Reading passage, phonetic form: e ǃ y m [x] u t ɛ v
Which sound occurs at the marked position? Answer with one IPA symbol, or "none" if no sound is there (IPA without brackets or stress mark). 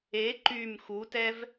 x